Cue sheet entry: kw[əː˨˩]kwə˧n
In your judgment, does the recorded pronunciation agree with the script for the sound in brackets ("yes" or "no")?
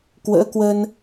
no